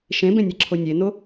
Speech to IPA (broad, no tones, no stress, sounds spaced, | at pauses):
ʃ ẽ b ẽ nʲ e ǁʰ o nʲ e n o